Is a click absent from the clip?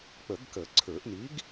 no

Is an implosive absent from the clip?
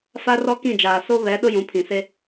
no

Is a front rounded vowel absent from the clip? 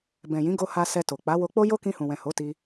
yes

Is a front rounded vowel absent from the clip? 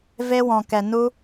yes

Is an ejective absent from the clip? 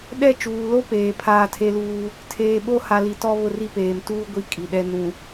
no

